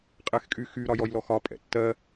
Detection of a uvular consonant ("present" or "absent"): present